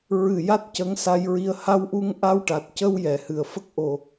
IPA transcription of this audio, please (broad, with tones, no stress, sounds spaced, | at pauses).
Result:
ɹ ɨ˨˩ j a˦˥ t̚ c ə˧˥ ŋ s a˧ j ɹ i˧ ə̯ h a˧ w ʔ u˧ ŋ ʔ a˧ w ʈ a˨˩ t̚ c ə˧ w j ɛ˨˩˨ h ɨ˨˩ ə̯ f ə˦˥ k̚ ʔ o˧